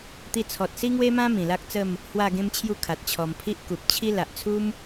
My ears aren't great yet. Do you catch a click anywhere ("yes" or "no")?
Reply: no